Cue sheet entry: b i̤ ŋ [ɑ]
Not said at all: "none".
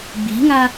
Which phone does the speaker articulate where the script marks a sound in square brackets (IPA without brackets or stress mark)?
a